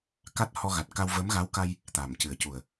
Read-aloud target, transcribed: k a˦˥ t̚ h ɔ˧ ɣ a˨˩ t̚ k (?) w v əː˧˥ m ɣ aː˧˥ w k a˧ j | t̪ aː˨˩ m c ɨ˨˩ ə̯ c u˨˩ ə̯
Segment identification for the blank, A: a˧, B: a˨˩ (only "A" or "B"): A